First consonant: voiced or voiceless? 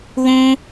voiced